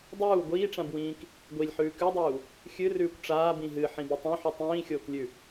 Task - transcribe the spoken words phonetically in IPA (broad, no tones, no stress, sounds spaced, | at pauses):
dˤ uː ɡʷ iː ʈ͡ʂ ã b w ĩː k | ɡʷ i lʲ ħ ʉː k ʉ dˤ uː | xʲ ɨ r ʉː kʷ ʈ͡ʂ aː b ĩ ɦ ɨ ħ ĩ b ɨ tˤ õ ħ ʉ tˤ ĩː xʲ oː k lʲ ʉ